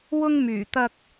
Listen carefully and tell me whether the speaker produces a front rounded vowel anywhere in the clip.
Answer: yes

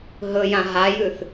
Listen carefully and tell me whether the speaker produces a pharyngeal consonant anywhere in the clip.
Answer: no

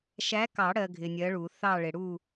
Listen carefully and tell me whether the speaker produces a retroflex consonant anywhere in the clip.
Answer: yes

